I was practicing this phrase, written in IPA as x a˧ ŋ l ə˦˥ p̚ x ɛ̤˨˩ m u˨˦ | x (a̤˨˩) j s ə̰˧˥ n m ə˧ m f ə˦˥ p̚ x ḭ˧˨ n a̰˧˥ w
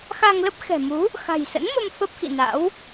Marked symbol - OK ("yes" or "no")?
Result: yes